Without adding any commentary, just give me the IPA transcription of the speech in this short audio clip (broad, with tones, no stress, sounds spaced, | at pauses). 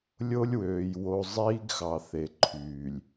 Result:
lʲ o˦ lʲ w øː˨ j w o˨ zˤ iː˦ ɡ x ɑ˨ θ e˨ ǃʰ yː˨ lʲ